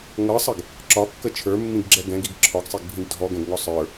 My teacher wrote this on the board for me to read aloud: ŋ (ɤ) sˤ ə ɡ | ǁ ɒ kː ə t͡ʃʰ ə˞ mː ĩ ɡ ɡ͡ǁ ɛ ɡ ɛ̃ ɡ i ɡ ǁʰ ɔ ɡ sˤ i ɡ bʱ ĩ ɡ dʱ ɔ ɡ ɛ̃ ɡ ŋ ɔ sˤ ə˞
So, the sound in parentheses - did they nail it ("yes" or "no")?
yes